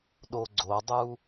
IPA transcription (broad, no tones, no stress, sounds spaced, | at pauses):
ɗ o ɡ͡ǀ o dˤ u